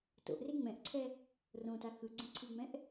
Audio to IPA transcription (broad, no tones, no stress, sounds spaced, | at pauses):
t o̰ ʔ r e ŋ͡m ɛ̃ ʔ ǀʰ ɛ | r õ t a x ɯ ɡ͡ǀ ẽ ǀʰ i ŋ͡m ɛ̃ ʔ